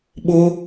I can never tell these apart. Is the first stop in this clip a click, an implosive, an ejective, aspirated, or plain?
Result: implosive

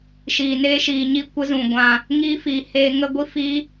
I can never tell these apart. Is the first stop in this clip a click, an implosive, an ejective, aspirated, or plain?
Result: plain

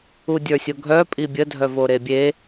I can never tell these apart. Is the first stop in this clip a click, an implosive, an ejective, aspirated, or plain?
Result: plain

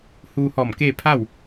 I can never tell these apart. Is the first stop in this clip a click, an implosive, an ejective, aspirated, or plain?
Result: plain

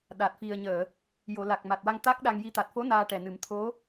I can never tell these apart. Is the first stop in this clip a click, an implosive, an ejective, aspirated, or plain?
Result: implosive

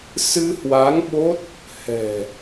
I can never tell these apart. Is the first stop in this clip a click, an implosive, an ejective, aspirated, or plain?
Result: implosive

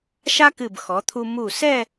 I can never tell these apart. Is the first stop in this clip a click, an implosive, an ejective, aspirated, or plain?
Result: plain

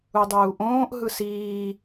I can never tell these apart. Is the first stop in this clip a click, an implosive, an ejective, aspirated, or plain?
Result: plain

